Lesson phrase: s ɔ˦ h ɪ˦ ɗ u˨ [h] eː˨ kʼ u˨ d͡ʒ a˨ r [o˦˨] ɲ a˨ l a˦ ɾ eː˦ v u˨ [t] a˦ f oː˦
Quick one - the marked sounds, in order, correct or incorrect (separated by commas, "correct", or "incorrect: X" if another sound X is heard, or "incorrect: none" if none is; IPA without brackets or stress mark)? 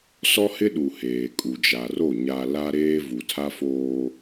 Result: correct, correct, incorrect: tʰ